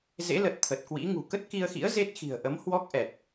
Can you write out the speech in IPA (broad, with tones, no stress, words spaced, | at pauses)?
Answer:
zḛ˧˥lə˨˩t̚ t̪ʰə˨˩t̚kwḭ˧˥ŋṳ˨˩ kə˦˥t̚ki˧ə̯xḭ˧˥ə̯ ze˦˥t̚ xi̤˨˩ə̯ʔə˨˦m hwɔ˦˥k̚ʔɛ˨˩t̚